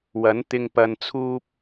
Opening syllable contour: rising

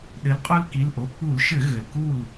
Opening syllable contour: rising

